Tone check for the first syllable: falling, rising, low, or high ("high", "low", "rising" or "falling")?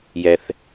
low